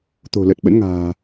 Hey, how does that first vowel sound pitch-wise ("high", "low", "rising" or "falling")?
low